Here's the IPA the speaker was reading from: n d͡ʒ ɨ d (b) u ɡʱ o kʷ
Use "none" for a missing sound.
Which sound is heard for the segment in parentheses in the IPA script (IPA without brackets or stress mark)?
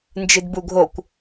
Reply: b